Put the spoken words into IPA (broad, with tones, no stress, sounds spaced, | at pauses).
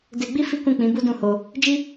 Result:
d e˧ ɡ͡b i˦ f i˦ k ũ˦˨ k͡p ĩ˨˦ b u˦ d ũ˦˨ h o˧ | d͡ʒ i˦